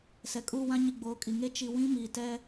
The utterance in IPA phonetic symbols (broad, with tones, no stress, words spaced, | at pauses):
sɛ˨kʼuː˦˨wã˦ɲi˨ ɡ͡boː˨˦kʼi˨ŋe˦ t͡ʃi˨ wĩ˦miː˨tɛ˦